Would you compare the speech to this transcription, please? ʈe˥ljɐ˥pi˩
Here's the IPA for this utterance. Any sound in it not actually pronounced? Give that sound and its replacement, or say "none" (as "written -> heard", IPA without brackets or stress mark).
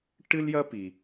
e˥ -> ɨ˥